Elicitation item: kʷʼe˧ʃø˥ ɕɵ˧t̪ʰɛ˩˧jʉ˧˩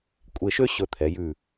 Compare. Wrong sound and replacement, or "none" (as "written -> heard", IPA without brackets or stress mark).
none